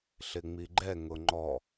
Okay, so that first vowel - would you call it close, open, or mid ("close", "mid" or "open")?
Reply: close